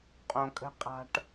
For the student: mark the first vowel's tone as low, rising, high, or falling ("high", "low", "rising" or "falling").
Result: low